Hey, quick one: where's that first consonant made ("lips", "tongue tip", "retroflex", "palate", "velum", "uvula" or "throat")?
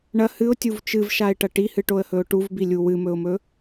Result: retroflex